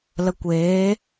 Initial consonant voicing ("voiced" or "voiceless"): voiced